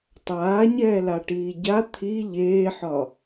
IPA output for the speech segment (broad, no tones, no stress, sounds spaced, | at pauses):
tˤ aː ɲ ɛː l a ʈ iː ɟ a t̪ʰ i ʎ eː ħ ɒ